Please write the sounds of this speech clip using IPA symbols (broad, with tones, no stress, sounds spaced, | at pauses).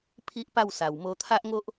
pʰ i˦ ʔ p a˥˧ w s a˨˩ w m o˧ t̪ʰ a˦ ʔ ŋ o˦ ʔ